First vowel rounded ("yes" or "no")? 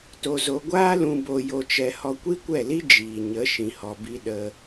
yes